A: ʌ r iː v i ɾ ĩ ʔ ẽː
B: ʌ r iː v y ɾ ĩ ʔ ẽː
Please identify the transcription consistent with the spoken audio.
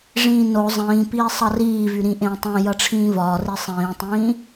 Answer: B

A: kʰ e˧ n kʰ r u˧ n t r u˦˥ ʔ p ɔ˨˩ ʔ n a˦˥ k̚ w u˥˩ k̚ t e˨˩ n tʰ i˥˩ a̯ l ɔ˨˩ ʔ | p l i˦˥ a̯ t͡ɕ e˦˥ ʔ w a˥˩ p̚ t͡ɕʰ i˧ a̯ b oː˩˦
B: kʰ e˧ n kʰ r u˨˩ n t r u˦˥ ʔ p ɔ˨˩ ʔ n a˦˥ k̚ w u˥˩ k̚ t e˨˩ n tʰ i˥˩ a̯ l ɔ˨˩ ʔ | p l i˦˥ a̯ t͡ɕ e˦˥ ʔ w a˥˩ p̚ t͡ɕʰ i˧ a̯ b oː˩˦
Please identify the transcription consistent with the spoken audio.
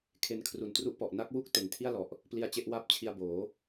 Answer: B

